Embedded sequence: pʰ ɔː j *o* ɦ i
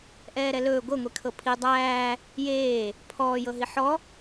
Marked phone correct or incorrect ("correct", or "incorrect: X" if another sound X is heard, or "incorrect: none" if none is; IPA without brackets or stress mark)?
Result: incorrect: ɤ